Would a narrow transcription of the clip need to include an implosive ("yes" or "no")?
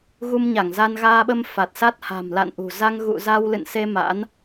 yes